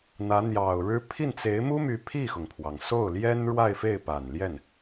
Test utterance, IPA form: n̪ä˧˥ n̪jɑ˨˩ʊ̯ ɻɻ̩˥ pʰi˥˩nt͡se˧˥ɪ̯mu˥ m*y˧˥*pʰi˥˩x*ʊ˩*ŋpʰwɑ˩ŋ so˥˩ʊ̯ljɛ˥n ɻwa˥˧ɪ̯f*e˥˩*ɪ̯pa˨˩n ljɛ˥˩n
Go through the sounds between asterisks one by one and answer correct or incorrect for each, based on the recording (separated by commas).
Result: correct, correct, correct